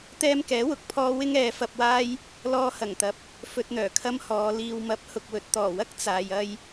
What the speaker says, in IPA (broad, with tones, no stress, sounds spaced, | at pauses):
t̪ ɛː˧ m k ɛː˨˥ w ʊ˨˥ k̚ pʰ ɔː˧ w ɪ˥ ŋ ɛː˨˧ f ɐ˧ p̚ w aː˥ j | l ɔː˧ h ɐ˨˩ ŋ t̪ ɐ˨ p̚ | f ɵ˧ t̚ n̪ œː˨˩ kʰ ɐ˥ m h ɔː˨˧ l iː˨ w m ɐ˨˥ p̚ h ʊ˨ k̚ w ɵ˨ t̚ t̪ ɔː˨˩ w ɐ˥ k̚ t͡s aː˧ j ɐ˥ j